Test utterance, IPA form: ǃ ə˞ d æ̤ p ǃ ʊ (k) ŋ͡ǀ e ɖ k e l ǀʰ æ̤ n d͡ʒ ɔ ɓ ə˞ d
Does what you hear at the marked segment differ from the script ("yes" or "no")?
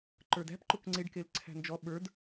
no